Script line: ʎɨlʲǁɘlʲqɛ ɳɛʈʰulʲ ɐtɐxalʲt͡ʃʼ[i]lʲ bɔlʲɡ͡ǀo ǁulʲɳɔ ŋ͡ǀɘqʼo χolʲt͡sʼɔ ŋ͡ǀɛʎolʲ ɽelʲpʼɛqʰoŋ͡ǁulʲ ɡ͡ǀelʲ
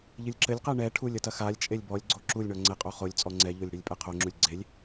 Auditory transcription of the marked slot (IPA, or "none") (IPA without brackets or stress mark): e